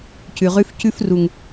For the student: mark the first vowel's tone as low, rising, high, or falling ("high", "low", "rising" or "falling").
low